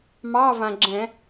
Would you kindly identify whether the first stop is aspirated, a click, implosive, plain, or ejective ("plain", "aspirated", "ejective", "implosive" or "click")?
click